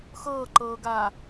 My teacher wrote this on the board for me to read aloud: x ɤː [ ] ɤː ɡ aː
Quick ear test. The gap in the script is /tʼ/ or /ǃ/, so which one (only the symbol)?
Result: ǃ